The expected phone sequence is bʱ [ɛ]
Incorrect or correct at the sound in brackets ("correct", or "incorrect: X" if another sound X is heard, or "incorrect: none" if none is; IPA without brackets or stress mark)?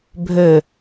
incorrect: ø